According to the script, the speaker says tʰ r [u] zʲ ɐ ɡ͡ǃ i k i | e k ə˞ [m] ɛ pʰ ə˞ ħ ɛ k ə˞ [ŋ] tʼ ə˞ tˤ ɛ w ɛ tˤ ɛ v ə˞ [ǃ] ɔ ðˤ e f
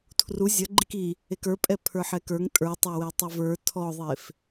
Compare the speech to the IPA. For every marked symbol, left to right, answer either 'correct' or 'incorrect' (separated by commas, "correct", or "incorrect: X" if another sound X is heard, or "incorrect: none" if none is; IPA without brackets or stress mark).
correct, incorrect: pʼ, correct, incorrect: tʰ